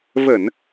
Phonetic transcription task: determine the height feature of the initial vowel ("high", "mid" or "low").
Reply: mid